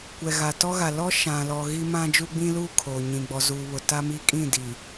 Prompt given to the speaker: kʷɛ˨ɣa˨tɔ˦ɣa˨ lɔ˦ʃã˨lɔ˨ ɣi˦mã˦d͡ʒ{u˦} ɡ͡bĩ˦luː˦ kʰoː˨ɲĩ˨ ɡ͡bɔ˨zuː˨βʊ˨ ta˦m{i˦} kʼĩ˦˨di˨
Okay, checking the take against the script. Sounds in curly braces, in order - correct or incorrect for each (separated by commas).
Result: correct, correct